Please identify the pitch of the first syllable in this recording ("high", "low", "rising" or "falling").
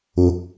rising